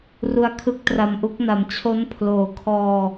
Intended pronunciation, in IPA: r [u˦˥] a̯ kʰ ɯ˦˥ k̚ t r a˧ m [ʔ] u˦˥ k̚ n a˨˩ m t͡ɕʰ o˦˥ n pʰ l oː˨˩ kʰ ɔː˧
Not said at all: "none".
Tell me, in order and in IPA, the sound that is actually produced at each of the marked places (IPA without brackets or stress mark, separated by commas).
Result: u˦˥, ʔ